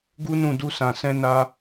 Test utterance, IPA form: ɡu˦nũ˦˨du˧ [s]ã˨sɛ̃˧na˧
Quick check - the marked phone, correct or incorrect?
correct